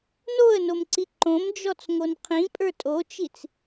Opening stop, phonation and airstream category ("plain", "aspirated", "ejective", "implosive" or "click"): click